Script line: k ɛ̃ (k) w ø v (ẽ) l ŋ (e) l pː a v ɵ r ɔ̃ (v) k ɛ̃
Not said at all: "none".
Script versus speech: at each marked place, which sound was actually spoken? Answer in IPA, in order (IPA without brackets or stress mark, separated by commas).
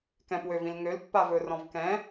p, ĩ, ø, v